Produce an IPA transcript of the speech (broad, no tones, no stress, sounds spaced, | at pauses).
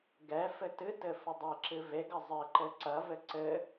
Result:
ɡ ɛ f ɘ t ɨ t ɘ f ɐ dˤ e ǁ ɨ v e ɡ ɐ zˤ ɘ ǃ ɘ ǀ ɐ v ɘ ǀ ɘ